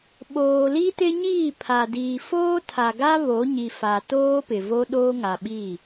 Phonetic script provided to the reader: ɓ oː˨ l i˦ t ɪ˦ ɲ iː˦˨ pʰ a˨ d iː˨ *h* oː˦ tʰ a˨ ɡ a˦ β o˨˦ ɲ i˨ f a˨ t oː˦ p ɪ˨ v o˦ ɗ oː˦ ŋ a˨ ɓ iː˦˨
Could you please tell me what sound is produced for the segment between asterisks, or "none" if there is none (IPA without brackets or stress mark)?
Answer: f